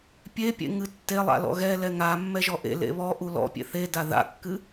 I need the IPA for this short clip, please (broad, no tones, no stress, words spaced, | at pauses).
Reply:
pʲepʲḛŋɨ tːelˠa̰lɔ̰ ɣɛ lɛŋa mːɛʒɔʔḛ lḛβɔ ʔulɔ̰pʲḛ θeda ða̰kːɨ